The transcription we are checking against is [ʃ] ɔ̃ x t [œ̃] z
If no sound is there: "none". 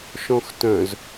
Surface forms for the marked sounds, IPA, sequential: ʃ, œ̃

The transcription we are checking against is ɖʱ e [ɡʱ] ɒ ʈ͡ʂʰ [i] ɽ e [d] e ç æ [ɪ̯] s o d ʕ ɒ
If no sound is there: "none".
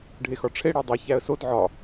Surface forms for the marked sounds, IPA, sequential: x, e, dˤ, ə̯

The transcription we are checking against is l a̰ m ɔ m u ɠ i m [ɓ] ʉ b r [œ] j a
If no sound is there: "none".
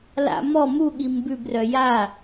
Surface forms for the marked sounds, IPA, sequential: b, œ

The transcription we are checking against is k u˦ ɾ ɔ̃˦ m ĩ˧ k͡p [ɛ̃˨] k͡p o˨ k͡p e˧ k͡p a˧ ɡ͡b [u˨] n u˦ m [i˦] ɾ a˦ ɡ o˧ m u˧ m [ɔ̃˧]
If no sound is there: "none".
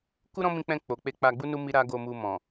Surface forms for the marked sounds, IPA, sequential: ɛ̃˧, u˦, i˦, ɔ̃˨

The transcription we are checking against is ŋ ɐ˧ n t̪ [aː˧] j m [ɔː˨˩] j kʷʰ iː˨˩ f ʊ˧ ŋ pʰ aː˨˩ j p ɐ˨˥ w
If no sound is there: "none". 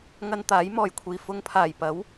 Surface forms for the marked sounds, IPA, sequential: aː˨˥, ɔː˨˩

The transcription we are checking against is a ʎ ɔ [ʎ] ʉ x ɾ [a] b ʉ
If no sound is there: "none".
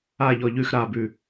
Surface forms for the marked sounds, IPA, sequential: ʎ, a

